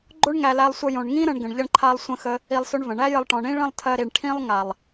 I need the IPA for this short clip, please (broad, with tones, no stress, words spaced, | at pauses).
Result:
ɡ͡ǃo˦ɳ ŋæ˧læ˧lˠsʷə˧ jõ˨ɳŋĩ˦ ɾə̃˧ɳ ɡə̃˨ɳʎə˧ɳǃʰa˧lˠ sʷə̃˧xə˧ | i˧lˠsɵ˧ɳvə̃˨ ɳæ˦jə˧lˠʈɔ̃˨ɳĩ˦ ɭə̃˦˨lˠtʰɜ˧ɾi˨ɳ ʈʰĩ˧lˠ ŋa˨lˠ